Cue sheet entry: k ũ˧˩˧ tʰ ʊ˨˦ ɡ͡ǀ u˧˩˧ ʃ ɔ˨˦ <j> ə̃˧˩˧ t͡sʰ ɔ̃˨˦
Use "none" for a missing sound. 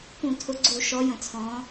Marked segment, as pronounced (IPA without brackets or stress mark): j